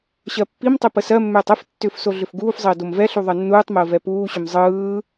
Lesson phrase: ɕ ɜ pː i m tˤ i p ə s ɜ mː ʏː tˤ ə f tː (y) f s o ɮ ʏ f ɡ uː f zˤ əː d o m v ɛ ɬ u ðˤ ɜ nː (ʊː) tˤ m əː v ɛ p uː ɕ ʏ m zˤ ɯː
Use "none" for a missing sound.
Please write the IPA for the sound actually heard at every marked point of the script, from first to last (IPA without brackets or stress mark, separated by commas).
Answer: ʏ, uː